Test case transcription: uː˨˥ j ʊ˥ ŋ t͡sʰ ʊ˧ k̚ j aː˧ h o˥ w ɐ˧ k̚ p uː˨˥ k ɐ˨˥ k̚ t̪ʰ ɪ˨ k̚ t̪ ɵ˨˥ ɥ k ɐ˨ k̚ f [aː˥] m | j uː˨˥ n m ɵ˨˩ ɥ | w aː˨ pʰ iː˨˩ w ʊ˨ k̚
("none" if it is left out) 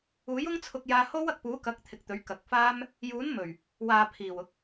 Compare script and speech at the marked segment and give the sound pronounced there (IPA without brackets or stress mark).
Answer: aː˥